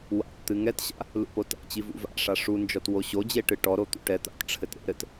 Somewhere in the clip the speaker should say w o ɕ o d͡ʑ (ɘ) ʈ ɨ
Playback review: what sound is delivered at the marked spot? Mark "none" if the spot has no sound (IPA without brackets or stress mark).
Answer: e